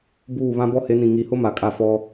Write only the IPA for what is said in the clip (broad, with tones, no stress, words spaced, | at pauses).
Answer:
buː˦˨βã˦ bɔ˦he˨˦nĩ˨ ŋi˨˦hʊ˦ ma˨kʼa˦˨ fɔ˦